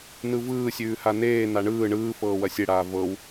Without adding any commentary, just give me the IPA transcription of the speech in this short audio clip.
nɯvɯːsʲʉː haneːna ɳɯː ɳɯː fɤːwɐsʲeɽaː vɤw

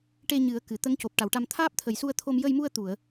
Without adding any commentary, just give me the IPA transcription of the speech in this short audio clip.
ʈe˧ɲɨ˨˩˦ə̯ kɨ˨˩ t̪ə˧˥ŋco˨˩p̚ʈa˨˩˨wʈa˧m t̪ʰaː˦˥p̚t̪ʰə˨˩jsu˧ə̯t̪ʰo˧m jə˧jmu˧ə̯t̪u˨˩˨ə̯

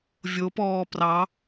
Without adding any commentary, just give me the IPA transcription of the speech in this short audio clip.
vʲopɔː prɑ

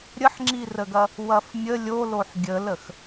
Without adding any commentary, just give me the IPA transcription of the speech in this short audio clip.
ɾʲəħŋ͡ǁirəɡɐ | wɐfmʲə lʲoloħ ɡʲələx

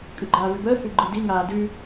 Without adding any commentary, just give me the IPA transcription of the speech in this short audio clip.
kʼʉɡ͡ǃaːvʉbəː hʉɡ͡ǃɯdi ŋaːdʉ

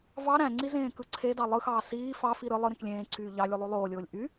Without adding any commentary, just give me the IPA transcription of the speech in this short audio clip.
vɑ ɾæ̃ŋ͡ǀi zẽːkɯǀʰedɑ lˠɯxɑː siː fɑfi ɾɯ lˠɯ ɾẽklʲẽːǀʰyː ʎɑlʲu lˠolˠoːlʲoːlʲ ʔy

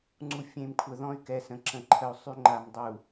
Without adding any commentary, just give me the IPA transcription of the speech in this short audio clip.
ŋ͡ǀu˨ fʲẽ˨m kʷʰə˨ðɔ̃˦y̯kɛ˨sə̃˨ ǁə̃˨ǃʰə˨u̯sˤy˦ ŋ͡ǃa˨mdˤu˨

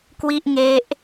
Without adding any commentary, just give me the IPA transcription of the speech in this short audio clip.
kwi˥˩ʔŋe˦˥ʔ

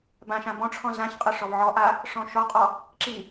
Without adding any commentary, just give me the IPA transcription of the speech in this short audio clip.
bãʃã bɔ̃ʈ͡ʂʰɔ̃ zãçqʼɤ ʂɔvʕɔʔa | ʂɔ̃ʃɔqʼɔ | ǁi

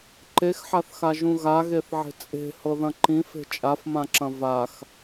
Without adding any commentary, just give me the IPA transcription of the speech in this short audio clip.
ǃexħaθxaʒũ ɣaɣeθʕe̤ t͡sʼe̤hɤðɐ̃ ǃĩfe̤ t͡ʃʼafmãǁɐ̃ vax

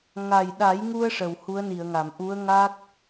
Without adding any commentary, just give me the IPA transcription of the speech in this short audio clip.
ŋa˨˩jɗa˨˩˦jŋu˧ə̯ ʂə˨˩whu˧˥ə̯ni˨˩˨ə̯ŋa˨˩˨m ʔu˧˥ə̯ŋa˦˥k̚

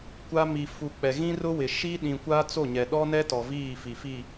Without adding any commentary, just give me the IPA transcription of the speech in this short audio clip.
kʷa˦ mi˨fu˨ k͡pɛ˨ɣĩ˦rʊ˦wɪ˨ ʃi˦ɗĩ˨kʷa˦ t͡so˦˨ɲɛ˨ ɗɔ˦nɛ˦ tɔ˨viː˦˨fi˨fi˦˨

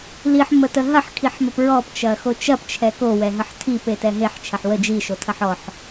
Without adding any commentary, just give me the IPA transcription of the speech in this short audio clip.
liħmətə ɦɐħkʰiħməp ɹɔpt͡ʃɐxo t͡ʃɐpt͡ʃʰɛ kowɛɦəħ tʰipetɛ ɦeħt͡ʃʰɐħ wə d͡ʒiʃotʰɐħ ɔħ

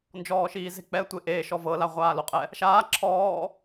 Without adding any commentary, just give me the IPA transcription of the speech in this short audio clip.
nd͡ʒɔːʃiːze̤k͡pɛ tʷeʔeː ʃɔvɤ laʁʷaːloqʼɛ | ʃaː ǁʰɔː

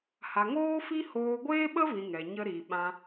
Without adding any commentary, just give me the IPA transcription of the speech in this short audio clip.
ha˨ŋoː˦fi˦ hoː˧ɡʷeː˦ɓə˦vĩ˨ ŋɛ˨ɲə˦ɾi˨ ɓã˧

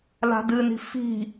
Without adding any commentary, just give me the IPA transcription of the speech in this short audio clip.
la̤dɨni̤ fi̤

